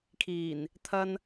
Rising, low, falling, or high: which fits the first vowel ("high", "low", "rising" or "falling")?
low